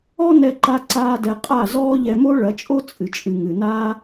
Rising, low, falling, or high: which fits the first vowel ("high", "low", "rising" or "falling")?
high